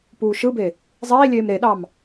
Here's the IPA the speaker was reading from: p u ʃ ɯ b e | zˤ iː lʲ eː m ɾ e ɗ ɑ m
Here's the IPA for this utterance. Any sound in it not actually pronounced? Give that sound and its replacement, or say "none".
u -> uː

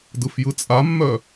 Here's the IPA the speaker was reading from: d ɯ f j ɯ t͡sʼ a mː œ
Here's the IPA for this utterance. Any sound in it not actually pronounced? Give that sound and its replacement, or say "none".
none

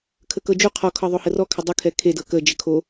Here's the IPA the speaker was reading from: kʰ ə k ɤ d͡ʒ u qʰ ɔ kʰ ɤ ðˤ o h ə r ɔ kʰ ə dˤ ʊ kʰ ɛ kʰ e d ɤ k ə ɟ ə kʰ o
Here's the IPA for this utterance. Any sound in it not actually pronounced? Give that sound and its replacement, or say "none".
ɟ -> d͡ʒ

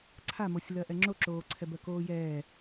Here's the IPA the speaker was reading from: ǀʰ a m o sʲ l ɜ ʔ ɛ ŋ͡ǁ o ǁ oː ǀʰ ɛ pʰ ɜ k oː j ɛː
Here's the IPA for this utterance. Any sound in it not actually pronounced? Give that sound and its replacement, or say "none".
pʰ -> b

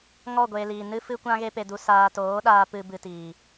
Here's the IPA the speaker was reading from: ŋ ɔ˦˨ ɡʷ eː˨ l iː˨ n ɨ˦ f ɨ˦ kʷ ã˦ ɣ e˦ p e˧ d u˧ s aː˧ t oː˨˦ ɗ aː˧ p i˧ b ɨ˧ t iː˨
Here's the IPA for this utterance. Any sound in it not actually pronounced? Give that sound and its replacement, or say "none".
i˧ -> ɨ˧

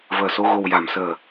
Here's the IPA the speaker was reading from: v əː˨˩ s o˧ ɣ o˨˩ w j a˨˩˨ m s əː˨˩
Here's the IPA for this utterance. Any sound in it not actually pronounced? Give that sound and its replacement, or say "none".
none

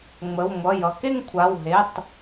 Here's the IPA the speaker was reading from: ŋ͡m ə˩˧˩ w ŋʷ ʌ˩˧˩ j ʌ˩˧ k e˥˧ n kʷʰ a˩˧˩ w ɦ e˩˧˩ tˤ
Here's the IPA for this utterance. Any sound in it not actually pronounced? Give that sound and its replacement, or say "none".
n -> ŋ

